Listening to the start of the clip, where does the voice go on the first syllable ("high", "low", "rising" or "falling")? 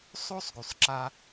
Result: high